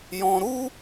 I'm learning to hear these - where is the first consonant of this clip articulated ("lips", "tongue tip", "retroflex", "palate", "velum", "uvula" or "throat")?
palate